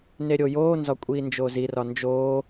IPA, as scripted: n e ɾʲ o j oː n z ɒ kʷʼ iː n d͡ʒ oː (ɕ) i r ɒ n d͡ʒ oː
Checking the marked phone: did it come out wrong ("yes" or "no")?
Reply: yes